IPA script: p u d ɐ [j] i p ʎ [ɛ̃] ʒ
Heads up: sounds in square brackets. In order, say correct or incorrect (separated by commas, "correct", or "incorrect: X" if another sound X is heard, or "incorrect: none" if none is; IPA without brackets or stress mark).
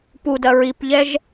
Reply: incorrect: ɹ, incorrect: ɛ